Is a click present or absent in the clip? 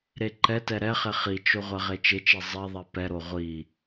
present